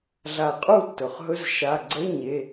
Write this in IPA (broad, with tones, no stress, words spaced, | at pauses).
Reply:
ɮa˨˩˦qʼu˥˩tːɵ˩χɦɵ˧˥˧z ʃa˩˧˩ɡ͡ǀə˧˥˧ɲe˩˧˩